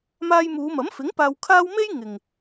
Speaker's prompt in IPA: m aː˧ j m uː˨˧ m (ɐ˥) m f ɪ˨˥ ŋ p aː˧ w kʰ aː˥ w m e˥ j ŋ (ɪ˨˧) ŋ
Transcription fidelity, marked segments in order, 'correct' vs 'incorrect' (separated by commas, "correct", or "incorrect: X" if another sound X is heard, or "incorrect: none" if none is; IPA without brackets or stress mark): incorrect: ɐ˨˥, incorrect: ɪ˨